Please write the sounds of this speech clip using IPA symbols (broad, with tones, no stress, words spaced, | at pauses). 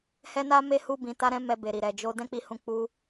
hɛ˦na˦ me˦hu˦ bĩ˧ta˦ɾɛ̃˦ mɛ˧be˨ɾi˨ ɾɛ˨d͡ʒo˧ dɛ̃˦k͡pi˧hũ˧ k͡pu˧